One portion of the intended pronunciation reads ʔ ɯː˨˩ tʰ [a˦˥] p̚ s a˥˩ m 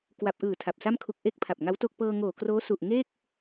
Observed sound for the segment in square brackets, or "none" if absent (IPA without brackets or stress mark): a˨˩